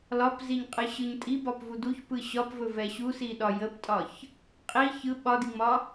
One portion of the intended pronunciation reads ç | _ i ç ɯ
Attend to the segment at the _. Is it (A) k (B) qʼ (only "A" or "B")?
B